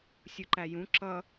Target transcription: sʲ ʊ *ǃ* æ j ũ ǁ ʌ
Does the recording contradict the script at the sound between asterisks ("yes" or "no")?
no